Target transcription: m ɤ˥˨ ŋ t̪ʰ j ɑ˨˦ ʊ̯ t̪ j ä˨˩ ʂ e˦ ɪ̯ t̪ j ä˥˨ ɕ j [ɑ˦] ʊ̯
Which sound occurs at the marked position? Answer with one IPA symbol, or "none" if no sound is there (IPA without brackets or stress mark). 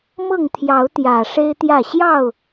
ɑ˥˨